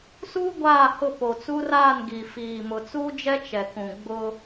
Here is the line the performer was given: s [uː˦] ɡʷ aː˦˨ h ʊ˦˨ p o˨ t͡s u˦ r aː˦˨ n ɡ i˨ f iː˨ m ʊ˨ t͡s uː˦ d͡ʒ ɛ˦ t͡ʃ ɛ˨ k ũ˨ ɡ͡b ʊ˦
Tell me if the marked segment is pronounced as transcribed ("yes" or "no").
yes